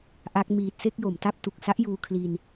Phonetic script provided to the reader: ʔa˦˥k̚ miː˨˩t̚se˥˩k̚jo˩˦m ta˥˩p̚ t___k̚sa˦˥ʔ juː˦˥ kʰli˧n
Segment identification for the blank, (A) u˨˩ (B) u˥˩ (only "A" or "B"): A